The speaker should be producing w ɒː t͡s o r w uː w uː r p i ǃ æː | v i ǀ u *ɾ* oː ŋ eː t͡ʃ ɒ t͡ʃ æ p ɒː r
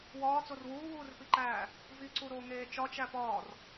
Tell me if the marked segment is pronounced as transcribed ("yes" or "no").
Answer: yes